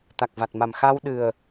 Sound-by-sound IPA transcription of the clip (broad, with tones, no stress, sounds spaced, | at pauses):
t̪ a˨˩ k̚ v a˨˩ t̚ m a˨˩ m x a˧ w ɗ ɨ˨˩ ə̯